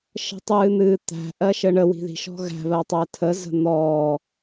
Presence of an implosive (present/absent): absent